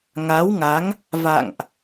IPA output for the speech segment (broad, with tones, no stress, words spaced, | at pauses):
ŋa˨˦wŋa˨˦ŋ | va̰˧˨ŋʔ